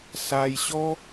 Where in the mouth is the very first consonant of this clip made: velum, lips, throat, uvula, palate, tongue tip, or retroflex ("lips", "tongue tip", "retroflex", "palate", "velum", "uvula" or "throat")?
tongue tip